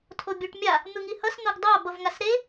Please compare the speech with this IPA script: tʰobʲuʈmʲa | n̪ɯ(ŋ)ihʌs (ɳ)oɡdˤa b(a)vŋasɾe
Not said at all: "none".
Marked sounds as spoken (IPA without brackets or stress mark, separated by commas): ŋ, n̪, ʌ